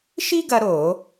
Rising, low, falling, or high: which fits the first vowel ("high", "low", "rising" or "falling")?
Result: high